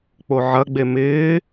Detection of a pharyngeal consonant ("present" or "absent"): present